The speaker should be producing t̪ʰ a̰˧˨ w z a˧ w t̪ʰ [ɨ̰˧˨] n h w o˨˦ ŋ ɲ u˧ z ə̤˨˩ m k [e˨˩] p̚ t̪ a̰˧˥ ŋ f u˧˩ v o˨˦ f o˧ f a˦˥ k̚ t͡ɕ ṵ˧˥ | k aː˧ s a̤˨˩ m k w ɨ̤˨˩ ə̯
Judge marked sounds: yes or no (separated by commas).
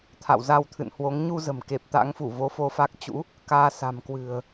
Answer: yes, yes